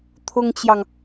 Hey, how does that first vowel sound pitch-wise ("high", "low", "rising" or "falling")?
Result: high